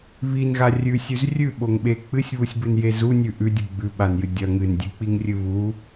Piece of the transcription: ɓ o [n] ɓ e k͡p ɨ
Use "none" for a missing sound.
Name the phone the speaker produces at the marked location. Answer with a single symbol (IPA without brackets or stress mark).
ŋ